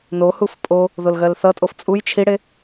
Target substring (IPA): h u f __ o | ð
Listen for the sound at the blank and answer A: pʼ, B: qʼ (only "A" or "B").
A